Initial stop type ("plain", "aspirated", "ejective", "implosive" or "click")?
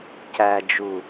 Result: plain